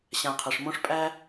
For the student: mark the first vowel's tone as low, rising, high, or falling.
low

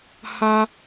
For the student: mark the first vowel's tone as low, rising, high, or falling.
high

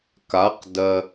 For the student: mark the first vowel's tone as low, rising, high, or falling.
rising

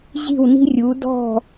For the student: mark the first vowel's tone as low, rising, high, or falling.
falling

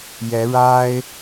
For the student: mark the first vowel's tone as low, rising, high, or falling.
rising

